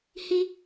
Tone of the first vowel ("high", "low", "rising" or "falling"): high